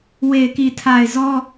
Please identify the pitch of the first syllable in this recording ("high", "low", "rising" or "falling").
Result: low